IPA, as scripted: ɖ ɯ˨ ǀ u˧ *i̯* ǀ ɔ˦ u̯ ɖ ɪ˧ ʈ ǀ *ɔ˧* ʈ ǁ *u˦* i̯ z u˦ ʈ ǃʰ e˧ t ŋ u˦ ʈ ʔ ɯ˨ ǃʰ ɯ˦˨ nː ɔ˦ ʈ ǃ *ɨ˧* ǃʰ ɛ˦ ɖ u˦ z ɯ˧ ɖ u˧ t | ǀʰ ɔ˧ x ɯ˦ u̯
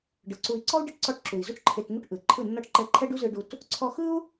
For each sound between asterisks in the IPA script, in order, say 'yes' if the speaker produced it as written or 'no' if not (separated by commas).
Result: yes, yes, no, no